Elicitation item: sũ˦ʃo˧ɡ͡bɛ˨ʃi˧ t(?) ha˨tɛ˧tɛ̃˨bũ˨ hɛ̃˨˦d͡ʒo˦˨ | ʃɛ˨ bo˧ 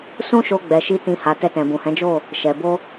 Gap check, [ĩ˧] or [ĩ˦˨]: ĩ˧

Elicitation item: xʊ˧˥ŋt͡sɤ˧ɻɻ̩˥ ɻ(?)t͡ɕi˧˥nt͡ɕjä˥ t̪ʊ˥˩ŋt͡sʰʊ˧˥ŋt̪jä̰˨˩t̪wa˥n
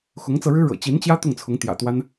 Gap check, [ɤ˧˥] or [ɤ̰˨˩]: ɤ̰˨˩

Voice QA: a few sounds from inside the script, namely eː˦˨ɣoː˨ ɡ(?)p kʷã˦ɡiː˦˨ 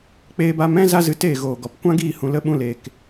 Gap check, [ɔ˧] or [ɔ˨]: ɔ˨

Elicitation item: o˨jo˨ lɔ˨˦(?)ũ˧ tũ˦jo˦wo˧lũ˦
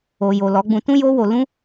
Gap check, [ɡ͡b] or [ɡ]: ɡ͡b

